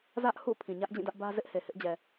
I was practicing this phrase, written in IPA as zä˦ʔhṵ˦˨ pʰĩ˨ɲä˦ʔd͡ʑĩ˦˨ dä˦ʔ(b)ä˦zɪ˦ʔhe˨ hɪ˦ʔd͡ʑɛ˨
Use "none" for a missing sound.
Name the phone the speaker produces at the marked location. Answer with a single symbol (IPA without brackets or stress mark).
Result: b